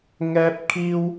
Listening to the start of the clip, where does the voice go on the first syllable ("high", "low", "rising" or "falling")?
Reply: high